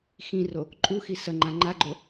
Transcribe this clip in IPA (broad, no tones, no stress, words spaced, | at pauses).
xĩro | ǃʼuxi sɐŋ͡ǃã ŋ͡ǃaɡ͡ǃo